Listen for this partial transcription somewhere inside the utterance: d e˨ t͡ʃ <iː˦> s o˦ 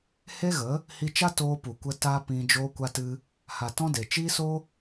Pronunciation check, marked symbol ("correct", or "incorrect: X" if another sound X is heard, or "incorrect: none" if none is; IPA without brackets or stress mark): correct